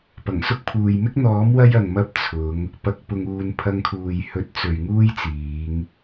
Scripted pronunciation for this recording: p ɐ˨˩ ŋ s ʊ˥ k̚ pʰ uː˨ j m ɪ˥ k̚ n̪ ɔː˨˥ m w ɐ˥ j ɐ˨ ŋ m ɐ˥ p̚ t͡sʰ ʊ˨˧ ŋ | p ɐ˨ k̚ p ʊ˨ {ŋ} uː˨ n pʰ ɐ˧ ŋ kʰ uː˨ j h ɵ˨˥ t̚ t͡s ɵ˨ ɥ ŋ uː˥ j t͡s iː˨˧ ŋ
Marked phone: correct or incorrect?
correct